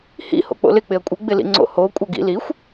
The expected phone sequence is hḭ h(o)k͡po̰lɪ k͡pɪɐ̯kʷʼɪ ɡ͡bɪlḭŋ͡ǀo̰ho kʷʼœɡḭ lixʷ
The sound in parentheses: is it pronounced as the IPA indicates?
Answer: no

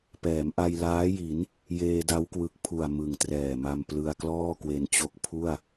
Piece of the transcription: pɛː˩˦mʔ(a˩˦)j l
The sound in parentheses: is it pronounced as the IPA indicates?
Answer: no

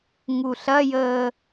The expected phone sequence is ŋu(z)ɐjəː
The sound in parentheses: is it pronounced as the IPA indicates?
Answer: no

